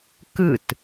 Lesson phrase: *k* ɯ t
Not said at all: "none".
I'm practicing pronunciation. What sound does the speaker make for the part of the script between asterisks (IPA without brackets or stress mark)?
k